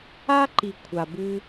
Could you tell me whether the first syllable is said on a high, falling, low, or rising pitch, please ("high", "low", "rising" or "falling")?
high